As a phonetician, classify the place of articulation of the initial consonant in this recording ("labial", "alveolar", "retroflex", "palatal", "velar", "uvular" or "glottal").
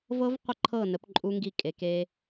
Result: labial